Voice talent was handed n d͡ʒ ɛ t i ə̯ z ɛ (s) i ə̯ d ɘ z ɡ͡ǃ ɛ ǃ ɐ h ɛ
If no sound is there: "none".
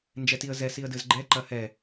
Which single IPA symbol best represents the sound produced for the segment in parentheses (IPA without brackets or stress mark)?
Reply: s